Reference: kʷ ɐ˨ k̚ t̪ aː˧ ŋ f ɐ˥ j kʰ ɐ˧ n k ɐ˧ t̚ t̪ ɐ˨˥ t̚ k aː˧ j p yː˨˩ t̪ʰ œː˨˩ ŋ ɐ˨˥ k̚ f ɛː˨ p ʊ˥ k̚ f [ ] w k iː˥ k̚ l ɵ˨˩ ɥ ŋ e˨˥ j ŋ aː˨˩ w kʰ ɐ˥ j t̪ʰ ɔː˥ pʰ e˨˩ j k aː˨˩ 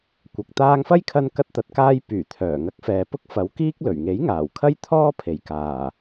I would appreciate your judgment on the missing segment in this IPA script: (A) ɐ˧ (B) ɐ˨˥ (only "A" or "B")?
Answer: B